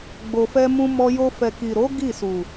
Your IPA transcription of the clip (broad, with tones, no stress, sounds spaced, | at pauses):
ɡ͡b o˨ f ɛ˧ m ũ˧ m ɔ˧ j o˧ f ɛ˨ k i˨ ɾ o˨˦ ɡ i˦˨ s u˨